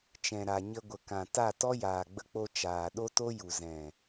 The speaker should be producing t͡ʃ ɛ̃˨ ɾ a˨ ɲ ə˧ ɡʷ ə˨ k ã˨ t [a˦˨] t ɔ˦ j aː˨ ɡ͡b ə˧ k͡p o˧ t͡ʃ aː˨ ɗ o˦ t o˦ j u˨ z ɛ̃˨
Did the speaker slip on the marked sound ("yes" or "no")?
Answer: no